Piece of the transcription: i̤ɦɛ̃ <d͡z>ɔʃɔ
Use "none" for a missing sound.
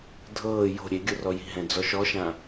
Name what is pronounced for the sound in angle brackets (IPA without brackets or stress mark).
d͡z